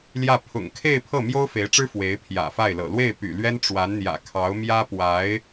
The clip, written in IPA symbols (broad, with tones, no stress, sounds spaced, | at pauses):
l j ä˥˩ pʰ ʊ̰˨˩ ŋ kʰ e˥˧ ɪ̯ pʰ ɤ˥˩ m j o˥ ʊ̯ f e˧˥ ɪ̯ ʈ͡ʂ ɻ̩˥ f w e˧˥ ɪ̯ pʰ j ä̰˨˩ f a˥˩ ɪ̯ l ɤ̰˨˩ l w e˥˩ ɪ̯ p y̰˨˩ l ɥ ɛ˥ n ʈ͡ʂ w a˧˥ n n̪ j ä̰˨˩ kʰ ɑ˧˥ ʊ̯ m j ä˥ p w a˧˥ ɪ̯